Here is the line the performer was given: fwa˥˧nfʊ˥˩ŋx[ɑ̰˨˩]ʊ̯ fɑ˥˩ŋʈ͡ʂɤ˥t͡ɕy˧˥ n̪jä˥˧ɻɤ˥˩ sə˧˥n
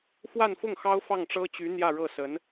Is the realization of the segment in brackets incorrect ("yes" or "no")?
yes